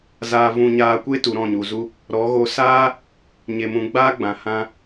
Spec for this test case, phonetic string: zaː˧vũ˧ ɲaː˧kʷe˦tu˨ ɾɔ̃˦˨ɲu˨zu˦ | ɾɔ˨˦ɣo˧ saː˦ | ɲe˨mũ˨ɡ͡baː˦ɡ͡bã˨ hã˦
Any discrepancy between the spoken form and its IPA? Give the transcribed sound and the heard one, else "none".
none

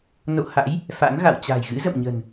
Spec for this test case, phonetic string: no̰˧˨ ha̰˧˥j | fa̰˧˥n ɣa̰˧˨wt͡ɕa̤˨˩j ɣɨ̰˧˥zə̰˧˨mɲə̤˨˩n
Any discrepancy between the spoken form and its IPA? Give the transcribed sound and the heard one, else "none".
none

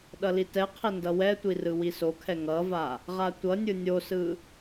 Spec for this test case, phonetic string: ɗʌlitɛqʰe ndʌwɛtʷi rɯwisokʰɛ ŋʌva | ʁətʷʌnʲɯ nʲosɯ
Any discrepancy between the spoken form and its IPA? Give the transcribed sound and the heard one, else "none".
ə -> a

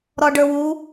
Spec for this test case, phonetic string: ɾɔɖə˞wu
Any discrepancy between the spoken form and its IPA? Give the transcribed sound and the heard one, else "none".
none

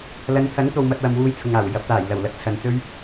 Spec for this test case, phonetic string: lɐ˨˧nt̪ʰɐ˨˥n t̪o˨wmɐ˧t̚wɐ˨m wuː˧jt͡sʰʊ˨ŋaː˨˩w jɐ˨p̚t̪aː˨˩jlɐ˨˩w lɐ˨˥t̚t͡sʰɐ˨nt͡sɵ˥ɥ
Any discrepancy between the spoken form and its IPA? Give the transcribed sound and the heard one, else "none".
none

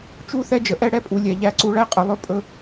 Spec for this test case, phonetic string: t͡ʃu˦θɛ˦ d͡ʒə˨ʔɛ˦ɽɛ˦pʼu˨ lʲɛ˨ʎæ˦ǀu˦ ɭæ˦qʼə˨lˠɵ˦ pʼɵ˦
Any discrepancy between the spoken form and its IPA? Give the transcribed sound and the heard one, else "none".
none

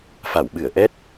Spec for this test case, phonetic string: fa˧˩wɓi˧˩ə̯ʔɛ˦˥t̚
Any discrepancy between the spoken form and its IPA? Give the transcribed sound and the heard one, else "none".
i˧˩ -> ɨ˧˩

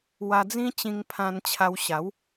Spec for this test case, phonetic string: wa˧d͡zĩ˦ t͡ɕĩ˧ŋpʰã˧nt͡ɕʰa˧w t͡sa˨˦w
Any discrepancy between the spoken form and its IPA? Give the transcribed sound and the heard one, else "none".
t͡s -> ɕ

